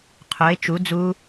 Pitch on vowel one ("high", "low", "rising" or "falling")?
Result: rising